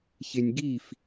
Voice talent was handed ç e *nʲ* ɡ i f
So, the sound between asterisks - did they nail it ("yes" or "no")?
yes